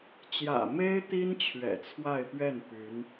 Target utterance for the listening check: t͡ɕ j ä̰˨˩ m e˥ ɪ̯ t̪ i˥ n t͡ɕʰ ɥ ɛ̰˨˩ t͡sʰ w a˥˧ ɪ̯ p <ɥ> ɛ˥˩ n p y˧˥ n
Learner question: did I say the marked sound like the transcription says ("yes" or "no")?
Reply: yes